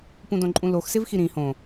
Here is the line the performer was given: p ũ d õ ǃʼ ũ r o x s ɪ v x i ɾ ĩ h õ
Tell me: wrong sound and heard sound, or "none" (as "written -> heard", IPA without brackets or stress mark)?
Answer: r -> l